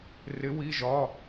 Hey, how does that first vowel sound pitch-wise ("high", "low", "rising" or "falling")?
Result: rising